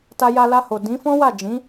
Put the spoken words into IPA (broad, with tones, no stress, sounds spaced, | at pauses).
t a˧ j a˧ l a˧ h o˨ d ĩ˨˦ f ɔ̃˦ w a˦˨ d͡ʒ ĩ˨˦